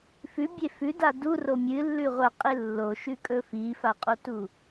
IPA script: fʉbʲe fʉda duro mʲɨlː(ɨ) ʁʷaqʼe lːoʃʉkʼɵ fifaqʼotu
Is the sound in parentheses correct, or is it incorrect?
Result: incorrect